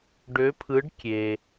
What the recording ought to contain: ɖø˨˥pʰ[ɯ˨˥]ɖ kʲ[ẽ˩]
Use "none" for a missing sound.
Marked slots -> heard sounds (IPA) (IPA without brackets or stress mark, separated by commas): ɯ˨˥, e˩